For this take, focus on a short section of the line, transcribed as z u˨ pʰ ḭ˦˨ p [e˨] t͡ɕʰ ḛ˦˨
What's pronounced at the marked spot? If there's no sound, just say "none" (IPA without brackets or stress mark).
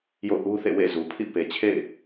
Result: e˨